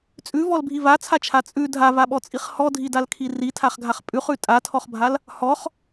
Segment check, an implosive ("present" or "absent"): present